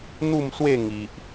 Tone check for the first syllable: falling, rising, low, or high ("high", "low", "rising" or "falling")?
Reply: falling